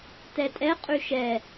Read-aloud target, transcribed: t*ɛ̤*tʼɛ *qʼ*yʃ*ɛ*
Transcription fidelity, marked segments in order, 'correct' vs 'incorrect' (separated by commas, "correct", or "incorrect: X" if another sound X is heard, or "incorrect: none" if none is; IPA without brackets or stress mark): incorrect: ɛ, correct, correct